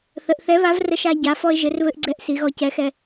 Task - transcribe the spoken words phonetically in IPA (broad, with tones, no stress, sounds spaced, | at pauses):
θ ə˩˧ ʔ θ ɛ˨˥ β a˨˥ v r ə˧ ʃ a˧ ɟ a˩˧ f ɔ˧ ɪ̯ ʒ ɘ˩˧ r β ɘ˧ ʔ ɡ͡ǀ ɛ˧ ʔ s i˩˧ ɣ ɔ˧ c ɛ˨˥ x ɛ˧